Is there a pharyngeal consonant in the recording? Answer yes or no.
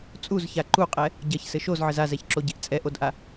yes